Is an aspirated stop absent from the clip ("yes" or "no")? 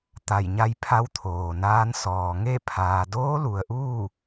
no